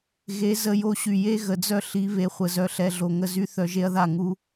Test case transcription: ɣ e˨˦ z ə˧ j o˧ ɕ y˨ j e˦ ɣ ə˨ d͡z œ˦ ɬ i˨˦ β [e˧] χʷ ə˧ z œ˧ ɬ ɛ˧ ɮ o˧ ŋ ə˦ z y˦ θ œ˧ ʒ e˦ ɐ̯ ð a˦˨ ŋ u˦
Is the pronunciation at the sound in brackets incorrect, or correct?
correct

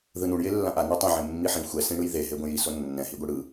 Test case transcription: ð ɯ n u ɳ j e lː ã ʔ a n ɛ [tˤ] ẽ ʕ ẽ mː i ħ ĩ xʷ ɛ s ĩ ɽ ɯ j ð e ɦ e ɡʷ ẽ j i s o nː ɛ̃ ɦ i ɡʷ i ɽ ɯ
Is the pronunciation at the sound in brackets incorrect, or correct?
correct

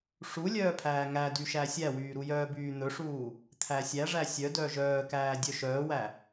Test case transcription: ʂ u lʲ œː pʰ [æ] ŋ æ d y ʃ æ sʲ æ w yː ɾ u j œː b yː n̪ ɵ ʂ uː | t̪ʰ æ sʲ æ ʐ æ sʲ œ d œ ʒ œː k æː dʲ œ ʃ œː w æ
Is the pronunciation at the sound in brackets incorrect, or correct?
incorrect: æː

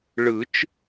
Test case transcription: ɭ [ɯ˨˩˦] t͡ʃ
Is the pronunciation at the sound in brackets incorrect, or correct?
correct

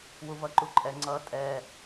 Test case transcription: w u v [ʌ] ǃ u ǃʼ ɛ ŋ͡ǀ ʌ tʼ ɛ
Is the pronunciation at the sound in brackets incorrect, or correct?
correct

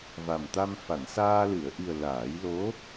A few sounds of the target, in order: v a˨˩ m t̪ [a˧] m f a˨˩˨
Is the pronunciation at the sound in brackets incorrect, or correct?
correct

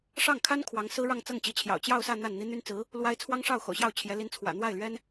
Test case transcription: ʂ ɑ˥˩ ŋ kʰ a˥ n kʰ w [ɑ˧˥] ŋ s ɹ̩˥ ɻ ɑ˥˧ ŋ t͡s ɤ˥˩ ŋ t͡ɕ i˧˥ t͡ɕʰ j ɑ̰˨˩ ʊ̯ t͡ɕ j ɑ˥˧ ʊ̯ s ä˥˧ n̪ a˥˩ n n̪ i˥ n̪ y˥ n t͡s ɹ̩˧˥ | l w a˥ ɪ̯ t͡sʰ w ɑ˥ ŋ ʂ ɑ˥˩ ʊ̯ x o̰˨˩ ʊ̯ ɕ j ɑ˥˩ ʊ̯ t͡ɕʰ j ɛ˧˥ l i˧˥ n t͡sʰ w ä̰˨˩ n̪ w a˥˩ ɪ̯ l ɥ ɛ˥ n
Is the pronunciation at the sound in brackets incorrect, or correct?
correct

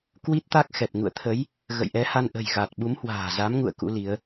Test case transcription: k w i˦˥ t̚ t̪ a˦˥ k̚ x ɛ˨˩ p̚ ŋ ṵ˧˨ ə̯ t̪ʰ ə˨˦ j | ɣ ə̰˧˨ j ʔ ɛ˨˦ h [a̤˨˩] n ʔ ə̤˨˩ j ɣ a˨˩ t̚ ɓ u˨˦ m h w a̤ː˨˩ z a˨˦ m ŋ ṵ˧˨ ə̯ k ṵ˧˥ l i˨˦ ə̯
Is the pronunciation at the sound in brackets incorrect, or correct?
incorrect: a˧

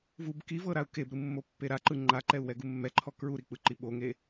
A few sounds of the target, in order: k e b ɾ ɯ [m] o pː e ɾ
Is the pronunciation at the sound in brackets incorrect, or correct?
incorrect: mː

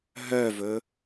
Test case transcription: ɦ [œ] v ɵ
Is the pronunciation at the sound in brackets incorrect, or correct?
correct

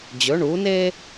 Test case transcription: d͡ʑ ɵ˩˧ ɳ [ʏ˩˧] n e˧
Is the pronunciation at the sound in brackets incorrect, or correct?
incorrect: u˩˧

